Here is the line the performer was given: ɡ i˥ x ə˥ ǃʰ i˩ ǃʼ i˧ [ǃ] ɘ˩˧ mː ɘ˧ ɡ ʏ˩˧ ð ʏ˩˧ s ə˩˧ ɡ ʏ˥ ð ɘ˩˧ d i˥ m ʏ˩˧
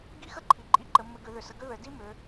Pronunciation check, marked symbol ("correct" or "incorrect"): correct